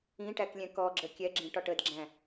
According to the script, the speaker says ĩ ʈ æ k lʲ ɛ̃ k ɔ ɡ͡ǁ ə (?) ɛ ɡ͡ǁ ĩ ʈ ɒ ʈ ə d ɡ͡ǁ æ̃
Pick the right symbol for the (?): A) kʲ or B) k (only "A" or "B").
A